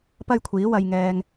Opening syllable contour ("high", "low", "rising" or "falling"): high